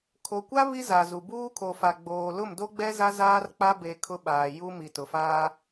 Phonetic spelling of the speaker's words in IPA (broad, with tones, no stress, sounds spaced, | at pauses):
kʰ o˨ kʷ a˦ β i˦ z a˨ z u˨ b uː˦ kʰ o˨ f a˨ ɡ͡b oː˨ l ʊ˦˨ m d o˦ ɡ͡b ɛ˦ z a˦ z aː˦ r k͡p a˦ b e˨ kʰ ʊ˦ ɓ aː˨ j u˦ m i˨ t ʊ˨ f aː˦